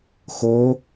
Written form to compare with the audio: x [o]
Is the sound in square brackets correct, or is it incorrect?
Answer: correct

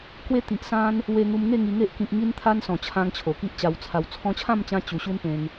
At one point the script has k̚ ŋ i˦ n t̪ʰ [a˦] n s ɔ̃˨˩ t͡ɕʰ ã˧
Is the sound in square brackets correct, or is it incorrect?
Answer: correct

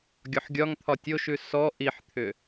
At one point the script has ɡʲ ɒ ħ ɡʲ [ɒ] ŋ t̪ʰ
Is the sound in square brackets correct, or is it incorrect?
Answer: correct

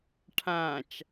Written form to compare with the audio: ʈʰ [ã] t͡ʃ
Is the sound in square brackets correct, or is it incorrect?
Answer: correct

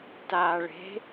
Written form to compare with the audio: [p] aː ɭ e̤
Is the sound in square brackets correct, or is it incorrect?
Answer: incorrect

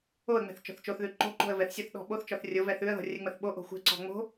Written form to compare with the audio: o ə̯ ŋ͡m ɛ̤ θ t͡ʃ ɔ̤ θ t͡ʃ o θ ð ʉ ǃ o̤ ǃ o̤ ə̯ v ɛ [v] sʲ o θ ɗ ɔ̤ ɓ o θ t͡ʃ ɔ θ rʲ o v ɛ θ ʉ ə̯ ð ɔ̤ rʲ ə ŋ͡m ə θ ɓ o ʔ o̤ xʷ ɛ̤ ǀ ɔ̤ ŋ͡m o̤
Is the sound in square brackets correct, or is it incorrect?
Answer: incorrect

